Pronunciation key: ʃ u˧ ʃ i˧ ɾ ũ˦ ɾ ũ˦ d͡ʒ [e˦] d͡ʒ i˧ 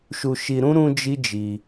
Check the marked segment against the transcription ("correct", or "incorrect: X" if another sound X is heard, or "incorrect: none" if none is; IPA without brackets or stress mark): incorrect: i˦